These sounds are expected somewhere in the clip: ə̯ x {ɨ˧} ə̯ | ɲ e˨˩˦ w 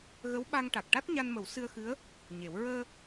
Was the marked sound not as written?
yes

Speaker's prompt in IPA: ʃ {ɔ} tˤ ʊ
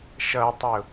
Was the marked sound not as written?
yes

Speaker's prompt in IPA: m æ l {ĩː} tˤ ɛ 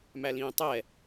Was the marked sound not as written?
no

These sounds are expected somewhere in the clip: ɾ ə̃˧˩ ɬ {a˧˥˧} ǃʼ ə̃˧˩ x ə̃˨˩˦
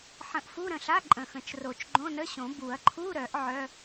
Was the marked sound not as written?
no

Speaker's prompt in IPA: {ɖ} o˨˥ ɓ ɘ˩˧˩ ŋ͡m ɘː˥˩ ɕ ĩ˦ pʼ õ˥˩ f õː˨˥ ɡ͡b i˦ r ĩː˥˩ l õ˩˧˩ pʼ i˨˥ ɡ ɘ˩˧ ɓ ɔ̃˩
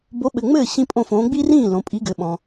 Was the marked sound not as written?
yes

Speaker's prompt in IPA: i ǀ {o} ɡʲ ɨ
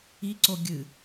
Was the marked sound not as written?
no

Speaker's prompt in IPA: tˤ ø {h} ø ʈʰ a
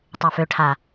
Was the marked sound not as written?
yes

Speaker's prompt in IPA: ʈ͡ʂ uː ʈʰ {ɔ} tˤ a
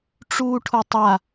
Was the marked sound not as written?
yes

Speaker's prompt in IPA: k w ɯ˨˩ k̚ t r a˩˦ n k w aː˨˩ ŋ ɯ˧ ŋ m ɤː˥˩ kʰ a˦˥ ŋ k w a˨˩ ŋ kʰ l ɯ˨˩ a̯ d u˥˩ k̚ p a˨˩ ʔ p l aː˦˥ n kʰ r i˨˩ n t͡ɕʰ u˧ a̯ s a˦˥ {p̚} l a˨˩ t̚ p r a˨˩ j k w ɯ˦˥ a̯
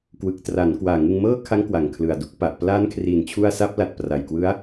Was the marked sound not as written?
no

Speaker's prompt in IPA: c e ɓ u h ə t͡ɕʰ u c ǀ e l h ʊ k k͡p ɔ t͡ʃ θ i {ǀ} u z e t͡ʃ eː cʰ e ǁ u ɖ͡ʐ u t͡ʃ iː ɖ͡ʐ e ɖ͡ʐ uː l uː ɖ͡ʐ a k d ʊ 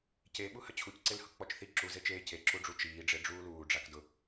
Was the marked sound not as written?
yes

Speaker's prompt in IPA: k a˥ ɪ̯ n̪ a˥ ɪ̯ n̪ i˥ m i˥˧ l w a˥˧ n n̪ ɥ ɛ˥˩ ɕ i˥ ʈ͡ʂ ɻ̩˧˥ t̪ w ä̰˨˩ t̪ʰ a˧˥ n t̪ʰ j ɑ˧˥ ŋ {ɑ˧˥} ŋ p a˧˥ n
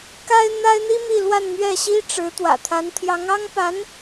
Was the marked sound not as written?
yes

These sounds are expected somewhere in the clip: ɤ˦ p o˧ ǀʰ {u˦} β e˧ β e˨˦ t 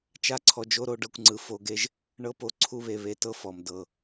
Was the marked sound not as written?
no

